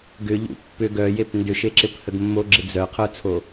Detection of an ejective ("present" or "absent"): absent